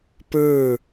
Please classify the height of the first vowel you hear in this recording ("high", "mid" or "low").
mid